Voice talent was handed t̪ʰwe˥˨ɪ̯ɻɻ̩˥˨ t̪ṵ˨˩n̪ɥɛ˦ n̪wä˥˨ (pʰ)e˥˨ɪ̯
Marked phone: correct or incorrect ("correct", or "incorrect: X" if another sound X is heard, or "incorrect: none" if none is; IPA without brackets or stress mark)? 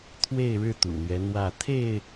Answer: incorrect: t̪ʰ